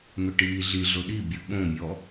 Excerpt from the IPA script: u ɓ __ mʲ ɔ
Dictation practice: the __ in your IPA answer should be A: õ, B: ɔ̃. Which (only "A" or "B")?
A